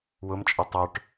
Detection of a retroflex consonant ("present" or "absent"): present